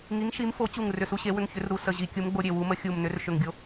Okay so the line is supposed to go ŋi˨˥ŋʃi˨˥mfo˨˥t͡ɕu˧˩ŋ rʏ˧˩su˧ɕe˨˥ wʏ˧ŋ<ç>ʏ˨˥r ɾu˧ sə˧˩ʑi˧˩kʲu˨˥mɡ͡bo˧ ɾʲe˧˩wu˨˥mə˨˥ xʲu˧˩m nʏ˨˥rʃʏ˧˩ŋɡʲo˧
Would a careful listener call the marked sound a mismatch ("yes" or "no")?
no